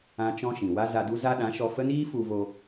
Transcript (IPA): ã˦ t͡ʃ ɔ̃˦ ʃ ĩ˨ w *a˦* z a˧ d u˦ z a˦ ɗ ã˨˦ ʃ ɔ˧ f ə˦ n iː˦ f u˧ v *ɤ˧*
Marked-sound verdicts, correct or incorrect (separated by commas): correct, incorrect